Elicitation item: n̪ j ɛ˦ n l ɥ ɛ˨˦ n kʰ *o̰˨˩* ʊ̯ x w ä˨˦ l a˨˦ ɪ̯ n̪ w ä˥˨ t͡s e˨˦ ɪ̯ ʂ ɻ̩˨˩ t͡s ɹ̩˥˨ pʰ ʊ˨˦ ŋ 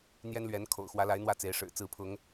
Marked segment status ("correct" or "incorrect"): correct